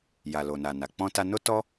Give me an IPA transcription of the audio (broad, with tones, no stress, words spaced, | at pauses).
ja˨lo˨na˨na˨ k͡pɔ̃˧ta˧ no˦tɔ˦